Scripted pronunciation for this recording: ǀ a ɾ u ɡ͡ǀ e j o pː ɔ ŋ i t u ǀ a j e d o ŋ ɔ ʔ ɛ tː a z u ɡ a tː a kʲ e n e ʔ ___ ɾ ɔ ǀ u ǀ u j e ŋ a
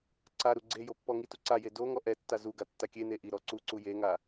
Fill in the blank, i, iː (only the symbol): i